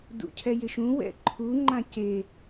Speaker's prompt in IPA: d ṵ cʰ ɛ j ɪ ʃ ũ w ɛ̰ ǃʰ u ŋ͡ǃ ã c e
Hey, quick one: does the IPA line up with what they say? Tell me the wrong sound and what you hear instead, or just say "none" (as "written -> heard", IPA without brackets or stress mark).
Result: none